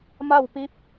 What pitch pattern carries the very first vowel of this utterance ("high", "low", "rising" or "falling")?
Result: falling